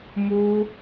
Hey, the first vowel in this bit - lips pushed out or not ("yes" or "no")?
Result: yes